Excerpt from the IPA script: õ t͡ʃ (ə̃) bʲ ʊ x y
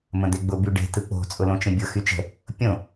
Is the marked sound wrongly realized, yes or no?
no